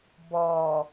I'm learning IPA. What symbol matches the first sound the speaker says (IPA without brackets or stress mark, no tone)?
b